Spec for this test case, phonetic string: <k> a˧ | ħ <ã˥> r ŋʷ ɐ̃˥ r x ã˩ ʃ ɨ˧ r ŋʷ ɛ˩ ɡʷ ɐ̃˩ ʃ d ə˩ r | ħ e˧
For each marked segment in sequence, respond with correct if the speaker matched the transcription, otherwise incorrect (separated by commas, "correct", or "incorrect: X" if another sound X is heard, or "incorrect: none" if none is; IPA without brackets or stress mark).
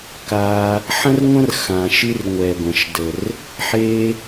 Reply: correct, incorrect: ɐ̃˥